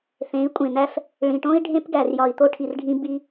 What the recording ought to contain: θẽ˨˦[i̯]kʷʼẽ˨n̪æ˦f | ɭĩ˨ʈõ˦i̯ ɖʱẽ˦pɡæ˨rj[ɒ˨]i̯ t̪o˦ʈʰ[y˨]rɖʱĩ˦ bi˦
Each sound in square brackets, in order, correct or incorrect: correct, correct, incorrect: i˨

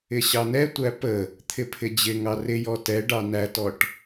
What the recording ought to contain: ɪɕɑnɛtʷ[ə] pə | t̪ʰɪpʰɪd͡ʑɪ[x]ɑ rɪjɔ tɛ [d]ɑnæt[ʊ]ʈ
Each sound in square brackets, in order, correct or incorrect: incorrect: æ, incorrect: ŋ, incorrect: ɖ, incorrect: ɔ

